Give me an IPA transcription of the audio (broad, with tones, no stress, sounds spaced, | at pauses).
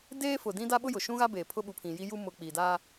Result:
d eː˦ f ʊ˨ d ĩ˦ d a˦ ɓ ʊ˦ j ʊ˨ ʃ ũ˦ ɣ a˦ b eː˨ pʰ ʊ˦ ɓ u˨ pʰ ĩ˨ j i˦ j u˦ m ʊ˨ k͡p i˨ d a˦